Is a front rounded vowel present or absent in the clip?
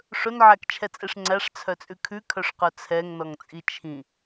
present